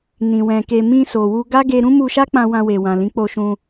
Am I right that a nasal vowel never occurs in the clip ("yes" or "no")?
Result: no